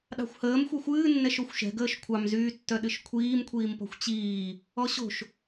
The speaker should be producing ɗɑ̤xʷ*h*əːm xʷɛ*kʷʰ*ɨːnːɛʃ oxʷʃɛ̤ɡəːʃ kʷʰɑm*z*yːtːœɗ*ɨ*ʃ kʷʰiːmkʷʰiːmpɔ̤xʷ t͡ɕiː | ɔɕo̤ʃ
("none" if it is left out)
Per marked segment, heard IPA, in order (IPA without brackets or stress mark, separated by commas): h, xʷ, z, ɨ